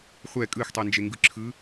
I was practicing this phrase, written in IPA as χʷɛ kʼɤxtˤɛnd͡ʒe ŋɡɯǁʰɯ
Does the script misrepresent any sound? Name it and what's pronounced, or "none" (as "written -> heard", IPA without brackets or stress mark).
ɤ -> ɯ